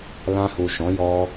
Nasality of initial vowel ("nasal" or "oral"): nasal